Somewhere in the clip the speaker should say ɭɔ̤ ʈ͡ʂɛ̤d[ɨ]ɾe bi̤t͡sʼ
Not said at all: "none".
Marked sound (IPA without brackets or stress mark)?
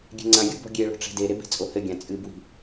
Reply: e